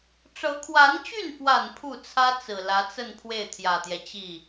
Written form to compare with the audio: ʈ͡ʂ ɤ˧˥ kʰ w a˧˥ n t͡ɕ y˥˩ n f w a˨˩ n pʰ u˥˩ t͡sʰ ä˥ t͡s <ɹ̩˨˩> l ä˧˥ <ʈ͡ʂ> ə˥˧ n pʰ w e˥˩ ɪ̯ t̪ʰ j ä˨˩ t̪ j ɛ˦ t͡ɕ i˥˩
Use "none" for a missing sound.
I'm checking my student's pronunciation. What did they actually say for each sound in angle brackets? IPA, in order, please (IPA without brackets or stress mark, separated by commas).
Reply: ɹ̩˨˩, t͡s